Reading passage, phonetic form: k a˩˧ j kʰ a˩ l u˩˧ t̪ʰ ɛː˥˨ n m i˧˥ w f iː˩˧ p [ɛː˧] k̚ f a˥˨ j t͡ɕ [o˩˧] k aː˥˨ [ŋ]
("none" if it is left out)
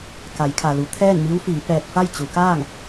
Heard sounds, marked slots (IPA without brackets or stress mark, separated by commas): ɛː˧, u˩˧, ŋ